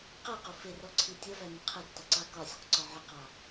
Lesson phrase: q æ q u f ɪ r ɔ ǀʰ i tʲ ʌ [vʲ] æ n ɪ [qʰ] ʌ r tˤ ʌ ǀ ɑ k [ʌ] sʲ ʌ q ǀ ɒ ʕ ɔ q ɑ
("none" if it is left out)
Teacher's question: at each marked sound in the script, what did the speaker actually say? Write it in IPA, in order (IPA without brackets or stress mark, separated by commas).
v, qʰ, ɒ